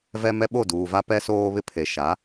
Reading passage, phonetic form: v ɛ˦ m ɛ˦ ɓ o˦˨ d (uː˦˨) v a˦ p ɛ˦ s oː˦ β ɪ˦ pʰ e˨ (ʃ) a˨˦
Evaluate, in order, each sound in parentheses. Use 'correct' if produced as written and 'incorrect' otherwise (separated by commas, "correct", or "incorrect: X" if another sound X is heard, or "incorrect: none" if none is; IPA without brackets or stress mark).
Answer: incorrect: uː˨, correct